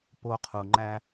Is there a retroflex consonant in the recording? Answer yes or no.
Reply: no